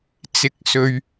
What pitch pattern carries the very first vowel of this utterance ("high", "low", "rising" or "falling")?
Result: low